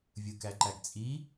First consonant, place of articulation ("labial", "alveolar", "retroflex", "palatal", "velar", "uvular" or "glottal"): labial